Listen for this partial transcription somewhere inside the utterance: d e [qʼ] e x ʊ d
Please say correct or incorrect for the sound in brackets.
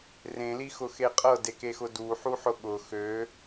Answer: incorrect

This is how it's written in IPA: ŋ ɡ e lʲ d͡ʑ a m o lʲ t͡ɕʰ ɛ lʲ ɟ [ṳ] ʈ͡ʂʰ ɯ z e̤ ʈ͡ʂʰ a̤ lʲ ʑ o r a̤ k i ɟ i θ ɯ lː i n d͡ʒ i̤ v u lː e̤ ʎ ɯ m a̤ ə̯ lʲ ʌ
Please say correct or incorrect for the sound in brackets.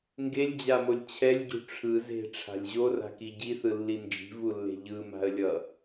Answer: correct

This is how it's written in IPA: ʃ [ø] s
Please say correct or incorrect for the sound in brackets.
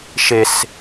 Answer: incorrect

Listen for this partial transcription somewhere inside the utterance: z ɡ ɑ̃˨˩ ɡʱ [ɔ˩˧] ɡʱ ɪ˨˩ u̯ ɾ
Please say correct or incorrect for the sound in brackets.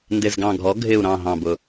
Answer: correct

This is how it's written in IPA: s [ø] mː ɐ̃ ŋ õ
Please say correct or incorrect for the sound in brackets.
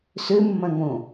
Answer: correct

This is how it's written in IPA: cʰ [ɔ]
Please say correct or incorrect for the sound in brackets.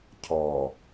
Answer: correct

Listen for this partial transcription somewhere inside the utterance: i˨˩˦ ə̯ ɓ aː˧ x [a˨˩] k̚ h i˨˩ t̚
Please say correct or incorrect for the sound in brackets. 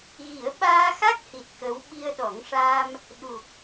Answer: incorrect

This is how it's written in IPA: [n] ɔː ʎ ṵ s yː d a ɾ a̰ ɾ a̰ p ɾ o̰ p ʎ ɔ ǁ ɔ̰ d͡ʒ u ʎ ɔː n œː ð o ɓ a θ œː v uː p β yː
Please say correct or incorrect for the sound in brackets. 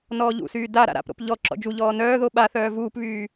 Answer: correct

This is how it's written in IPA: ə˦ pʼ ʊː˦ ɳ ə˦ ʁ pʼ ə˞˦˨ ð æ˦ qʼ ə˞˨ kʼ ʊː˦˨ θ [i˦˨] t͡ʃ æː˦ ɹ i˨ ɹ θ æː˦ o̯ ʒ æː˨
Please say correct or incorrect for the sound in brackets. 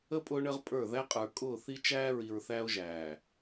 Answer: incorrect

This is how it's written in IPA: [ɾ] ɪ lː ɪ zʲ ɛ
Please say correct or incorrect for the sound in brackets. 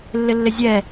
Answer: incorrect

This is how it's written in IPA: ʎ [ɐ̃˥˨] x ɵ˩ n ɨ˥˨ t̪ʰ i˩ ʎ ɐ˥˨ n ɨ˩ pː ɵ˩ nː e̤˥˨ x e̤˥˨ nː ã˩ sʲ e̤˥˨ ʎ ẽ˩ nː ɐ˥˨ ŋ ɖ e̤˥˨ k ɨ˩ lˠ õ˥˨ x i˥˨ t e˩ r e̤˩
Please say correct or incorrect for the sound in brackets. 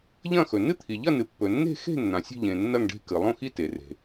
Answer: correct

